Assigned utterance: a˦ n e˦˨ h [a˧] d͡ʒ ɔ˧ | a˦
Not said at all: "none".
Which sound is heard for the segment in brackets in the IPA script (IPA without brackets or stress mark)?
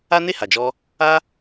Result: a˨